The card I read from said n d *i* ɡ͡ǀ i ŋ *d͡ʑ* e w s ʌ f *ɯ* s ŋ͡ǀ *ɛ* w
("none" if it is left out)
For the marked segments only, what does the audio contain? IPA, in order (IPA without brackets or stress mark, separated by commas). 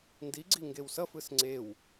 i, ɡ, ɯ, e